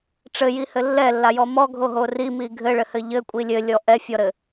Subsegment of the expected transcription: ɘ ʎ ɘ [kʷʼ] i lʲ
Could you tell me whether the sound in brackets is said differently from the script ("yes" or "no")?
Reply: no